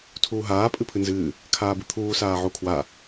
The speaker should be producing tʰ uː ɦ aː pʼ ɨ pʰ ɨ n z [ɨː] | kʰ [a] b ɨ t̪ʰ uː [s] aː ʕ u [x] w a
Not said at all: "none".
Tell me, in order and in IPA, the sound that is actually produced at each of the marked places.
ɨː, aː, s, kʰ

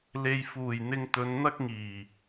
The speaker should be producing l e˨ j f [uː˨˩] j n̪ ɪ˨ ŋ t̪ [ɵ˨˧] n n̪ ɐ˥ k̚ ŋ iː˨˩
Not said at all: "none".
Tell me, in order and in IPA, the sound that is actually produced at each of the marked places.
uː˨˩, ɵ˨˧

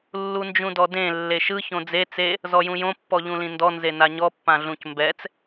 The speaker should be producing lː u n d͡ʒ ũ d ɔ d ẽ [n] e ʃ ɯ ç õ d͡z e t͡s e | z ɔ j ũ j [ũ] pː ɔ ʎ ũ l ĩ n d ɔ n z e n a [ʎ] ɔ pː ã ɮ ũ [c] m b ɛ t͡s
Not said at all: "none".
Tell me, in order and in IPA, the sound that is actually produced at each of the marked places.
lː, õ, ɲ, c

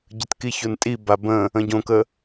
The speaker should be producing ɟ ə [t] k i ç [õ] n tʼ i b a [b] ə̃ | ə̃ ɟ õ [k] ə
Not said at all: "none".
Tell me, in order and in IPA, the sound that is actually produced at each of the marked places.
t, o, b, k

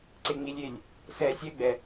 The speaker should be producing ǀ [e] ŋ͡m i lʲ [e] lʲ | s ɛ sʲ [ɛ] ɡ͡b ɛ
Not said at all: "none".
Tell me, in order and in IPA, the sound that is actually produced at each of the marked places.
e, e, ɛ

